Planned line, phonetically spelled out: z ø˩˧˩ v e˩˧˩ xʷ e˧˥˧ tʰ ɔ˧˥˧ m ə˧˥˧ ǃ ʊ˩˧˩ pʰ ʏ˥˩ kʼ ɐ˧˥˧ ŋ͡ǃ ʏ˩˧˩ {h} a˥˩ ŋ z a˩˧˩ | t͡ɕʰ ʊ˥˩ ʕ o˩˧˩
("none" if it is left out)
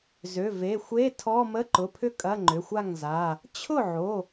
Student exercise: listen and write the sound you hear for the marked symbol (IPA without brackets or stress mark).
xʷ